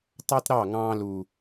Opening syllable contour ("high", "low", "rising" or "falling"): high